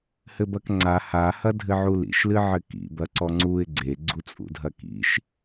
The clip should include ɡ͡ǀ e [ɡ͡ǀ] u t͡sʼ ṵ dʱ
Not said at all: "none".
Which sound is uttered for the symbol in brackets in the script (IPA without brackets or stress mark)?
ɡ͡ǀ